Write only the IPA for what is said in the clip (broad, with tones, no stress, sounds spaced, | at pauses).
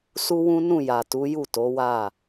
s u˦ w ũ˦ n ũ˦˨ j a˨ t u˨˦ j u˦˨ t o˨˦ w a˦˨